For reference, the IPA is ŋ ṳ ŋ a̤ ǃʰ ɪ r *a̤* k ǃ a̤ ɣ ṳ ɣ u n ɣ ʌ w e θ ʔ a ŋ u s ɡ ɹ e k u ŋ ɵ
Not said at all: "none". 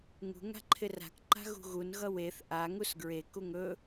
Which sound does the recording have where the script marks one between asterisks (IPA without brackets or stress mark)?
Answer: a̤